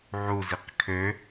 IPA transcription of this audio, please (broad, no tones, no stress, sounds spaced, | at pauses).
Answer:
ʕ u z i q kʰ ø